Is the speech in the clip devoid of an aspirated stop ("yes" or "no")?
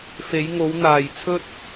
no